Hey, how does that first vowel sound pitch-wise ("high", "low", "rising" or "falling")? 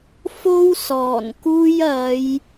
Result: high